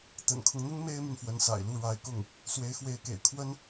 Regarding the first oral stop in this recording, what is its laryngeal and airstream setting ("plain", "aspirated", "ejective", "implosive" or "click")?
plain